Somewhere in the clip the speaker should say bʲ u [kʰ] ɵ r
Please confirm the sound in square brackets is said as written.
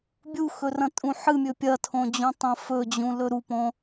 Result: no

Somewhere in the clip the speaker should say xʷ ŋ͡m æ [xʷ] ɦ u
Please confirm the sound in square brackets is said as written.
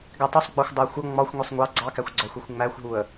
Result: yes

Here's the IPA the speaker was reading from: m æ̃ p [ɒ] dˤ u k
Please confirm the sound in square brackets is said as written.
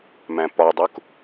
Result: yes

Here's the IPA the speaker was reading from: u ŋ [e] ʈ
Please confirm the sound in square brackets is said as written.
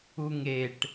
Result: yes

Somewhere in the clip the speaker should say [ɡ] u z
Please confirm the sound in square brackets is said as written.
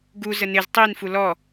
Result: yes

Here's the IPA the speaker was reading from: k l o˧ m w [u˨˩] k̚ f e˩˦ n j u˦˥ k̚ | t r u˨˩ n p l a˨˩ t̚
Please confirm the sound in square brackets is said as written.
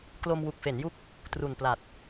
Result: yes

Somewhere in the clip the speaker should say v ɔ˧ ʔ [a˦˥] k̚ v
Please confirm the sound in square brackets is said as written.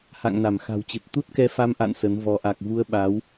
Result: no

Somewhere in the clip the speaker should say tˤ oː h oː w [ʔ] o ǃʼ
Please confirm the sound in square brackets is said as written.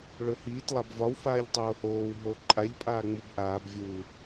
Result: no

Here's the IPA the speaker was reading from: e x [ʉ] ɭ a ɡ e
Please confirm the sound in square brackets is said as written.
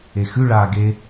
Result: yes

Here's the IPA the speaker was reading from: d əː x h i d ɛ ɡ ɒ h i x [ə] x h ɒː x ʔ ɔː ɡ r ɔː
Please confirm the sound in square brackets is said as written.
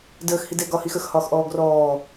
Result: yes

